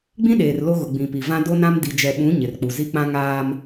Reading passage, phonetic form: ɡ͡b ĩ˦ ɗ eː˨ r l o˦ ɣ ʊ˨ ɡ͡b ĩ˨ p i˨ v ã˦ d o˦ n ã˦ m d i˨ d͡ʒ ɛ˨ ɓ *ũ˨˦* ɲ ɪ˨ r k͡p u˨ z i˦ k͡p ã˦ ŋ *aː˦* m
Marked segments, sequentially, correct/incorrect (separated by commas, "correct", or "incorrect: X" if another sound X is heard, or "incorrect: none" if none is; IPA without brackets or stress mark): correct, correct